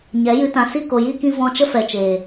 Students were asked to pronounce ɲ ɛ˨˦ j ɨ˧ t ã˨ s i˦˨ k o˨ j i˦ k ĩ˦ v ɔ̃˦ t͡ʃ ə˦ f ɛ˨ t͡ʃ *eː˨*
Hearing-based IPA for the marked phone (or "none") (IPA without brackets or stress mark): eː˨